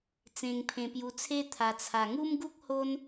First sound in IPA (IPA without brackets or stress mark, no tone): t͡s